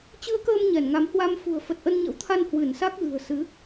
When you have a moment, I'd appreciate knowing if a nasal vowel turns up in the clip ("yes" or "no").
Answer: no